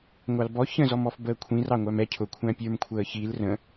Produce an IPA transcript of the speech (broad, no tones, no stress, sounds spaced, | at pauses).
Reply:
ŋʷ ɑ l b ɔ ç ə̃ z ɔ m ɔ f b əː kʷʰ ĩ r ɑ ŋʷ æ m ɛ cʰ ʊ kʷʰ æ̃ pʲ ə˞ m kʷʰ əː ç i l r ə̃